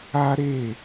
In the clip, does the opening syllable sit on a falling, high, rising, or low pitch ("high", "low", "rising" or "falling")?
high